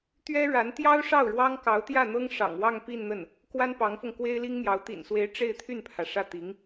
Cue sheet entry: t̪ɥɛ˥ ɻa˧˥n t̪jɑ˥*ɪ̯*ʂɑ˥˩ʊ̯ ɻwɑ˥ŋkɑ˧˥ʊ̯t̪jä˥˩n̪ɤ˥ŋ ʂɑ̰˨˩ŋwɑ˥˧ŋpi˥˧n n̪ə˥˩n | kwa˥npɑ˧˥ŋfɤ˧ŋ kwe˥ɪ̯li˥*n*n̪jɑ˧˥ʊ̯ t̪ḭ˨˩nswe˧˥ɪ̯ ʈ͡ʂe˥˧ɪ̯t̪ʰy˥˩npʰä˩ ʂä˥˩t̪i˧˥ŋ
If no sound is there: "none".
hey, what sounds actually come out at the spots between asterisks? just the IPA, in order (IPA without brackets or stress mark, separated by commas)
ʊ̯, ŋ